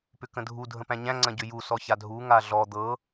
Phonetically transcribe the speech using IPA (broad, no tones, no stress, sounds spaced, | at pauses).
p ʏ k ə̃ dʱ u dʱ ə̃ p æ̃ ɲ æ̃ ŋ͡ǀ ɐ̃ ɟ ʏ j u s ɔ ç a dʱ u ŋ a ɮ ɔ d̪ ɤ